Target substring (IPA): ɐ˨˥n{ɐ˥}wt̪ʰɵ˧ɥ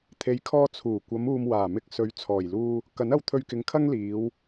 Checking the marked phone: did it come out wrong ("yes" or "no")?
yes